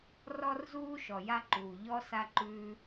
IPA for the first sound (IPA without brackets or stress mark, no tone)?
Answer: r